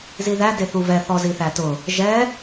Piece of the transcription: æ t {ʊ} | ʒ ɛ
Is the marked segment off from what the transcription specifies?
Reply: no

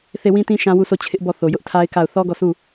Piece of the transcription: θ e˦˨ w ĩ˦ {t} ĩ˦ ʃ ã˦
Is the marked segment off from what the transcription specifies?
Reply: no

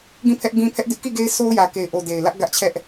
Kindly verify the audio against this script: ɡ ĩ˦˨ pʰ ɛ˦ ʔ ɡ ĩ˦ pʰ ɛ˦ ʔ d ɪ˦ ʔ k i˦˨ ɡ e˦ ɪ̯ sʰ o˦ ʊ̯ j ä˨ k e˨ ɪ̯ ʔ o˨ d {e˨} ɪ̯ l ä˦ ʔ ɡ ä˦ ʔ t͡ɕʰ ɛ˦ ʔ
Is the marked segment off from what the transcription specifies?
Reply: no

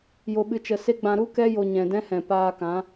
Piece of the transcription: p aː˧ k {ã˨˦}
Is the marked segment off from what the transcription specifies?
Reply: no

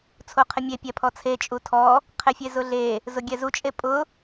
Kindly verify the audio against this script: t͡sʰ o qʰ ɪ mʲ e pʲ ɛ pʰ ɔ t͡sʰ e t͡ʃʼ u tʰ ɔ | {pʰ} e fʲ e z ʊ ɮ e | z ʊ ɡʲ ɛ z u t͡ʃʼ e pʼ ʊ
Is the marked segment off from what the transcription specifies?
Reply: yes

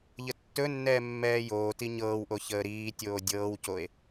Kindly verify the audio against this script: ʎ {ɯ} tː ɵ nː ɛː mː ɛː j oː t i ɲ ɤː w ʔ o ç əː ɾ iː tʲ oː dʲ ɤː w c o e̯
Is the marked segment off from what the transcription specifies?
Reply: yes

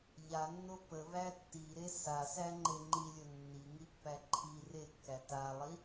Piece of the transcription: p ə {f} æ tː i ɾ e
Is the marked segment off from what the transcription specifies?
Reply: yes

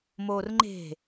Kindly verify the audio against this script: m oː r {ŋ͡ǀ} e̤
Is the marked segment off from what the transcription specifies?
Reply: yes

